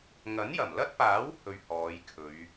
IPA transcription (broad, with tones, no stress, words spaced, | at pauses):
ŋɐ˨˥njɐ˨˩mlɐ˥t̚paː˨˥w hɵ˧ɥ hɔː˨˧jkʰɵ˨˧ɥ